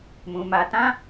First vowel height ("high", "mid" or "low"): high